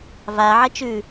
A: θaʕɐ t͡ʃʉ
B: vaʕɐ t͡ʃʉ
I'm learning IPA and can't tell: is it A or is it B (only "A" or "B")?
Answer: B